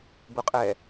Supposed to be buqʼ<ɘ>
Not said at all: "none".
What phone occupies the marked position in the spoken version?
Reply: ɛ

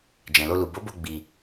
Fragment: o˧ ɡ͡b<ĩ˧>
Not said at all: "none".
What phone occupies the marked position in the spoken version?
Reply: i˧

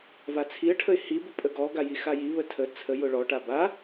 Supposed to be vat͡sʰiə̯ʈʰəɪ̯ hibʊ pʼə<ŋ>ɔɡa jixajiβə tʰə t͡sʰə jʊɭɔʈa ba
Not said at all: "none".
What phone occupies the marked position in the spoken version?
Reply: ɡ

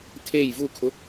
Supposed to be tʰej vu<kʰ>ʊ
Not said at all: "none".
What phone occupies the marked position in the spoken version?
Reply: kʰ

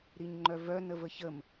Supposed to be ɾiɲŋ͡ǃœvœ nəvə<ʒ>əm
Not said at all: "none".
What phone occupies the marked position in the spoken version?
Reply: ç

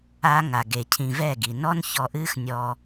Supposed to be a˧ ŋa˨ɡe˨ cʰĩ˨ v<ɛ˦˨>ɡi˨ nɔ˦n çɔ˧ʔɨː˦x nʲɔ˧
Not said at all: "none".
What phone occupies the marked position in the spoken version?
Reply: ɛ˦˨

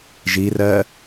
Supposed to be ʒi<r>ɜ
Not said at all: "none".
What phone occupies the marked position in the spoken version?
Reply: r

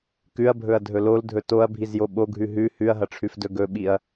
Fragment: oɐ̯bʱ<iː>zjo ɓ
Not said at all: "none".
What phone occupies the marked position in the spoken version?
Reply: i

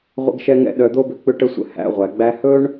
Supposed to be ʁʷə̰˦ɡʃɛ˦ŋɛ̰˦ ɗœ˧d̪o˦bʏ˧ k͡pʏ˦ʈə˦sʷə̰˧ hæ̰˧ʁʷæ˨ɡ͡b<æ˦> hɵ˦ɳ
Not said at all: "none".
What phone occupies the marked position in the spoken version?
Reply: æ˦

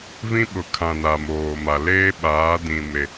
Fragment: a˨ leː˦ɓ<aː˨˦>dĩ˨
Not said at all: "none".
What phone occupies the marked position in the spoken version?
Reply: aː˨˦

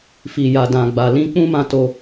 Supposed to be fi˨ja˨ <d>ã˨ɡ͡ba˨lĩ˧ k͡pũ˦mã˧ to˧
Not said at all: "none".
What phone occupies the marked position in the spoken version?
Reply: d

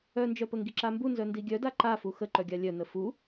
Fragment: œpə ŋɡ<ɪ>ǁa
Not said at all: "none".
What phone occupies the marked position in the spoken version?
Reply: i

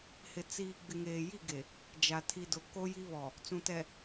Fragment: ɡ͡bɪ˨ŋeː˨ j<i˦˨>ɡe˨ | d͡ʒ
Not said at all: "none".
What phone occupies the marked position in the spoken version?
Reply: i˦˨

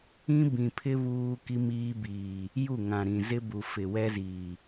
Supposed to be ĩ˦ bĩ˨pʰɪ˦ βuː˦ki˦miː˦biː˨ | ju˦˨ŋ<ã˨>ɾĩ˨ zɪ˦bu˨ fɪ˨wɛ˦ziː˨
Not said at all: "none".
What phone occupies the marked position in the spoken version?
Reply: ã˨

